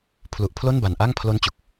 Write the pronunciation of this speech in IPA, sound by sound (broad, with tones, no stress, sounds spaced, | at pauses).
pʰ l u˨˩ ʔ pʰ l o˥˩ n b a˨˩ n ʔ a˥˩ ŋ pʰ l o˦˥ n t͡ɕ u˨˩ k̚